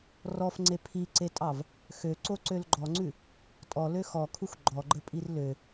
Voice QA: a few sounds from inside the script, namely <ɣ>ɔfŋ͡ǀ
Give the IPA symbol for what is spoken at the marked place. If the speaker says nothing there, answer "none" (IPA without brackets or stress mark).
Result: r